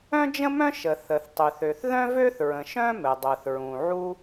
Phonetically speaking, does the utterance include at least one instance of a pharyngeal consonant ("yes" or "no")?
yes